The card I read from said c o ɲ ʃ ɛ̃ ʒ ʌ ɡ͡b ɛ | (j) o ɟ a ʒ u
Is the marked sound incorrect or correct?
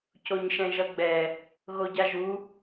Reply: incorrect